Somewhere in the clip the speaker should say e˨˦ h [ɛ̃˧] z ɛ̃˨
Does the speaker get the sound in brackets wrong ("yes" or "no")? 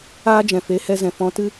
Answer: yes